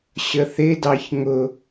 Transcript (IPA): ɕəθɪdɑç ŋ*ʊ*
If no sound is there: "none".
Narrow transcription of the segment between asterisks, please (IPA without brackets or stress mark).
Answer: ʊ